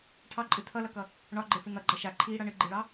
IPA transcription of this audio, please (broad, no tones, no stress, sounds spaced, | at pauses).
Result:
ʈʰ ɑ ǃʼ ɨ t̪ʰ ʌ l ʌ k ʌ | ɳ ɒ ɡ͡ǃ e f ɨ n̪ ʌ ɡ͡ǃ ʌ ʃ a ǃʰ iː ɽ ʌ ɳ ɨ ɡ͡ǃ i ɭ ɑ